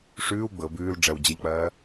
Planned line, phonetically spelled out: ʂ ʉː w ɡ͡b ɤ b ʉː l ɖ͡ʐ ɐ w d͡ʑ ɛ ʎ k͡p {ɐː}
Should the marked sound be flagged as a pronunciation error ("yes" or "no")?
no